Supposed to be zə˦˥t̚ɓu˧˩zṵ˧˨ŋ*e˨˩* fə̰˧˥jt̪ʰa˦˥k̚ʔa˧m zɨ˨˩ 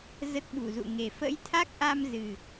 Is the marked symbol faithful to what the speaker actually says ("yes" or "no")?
yes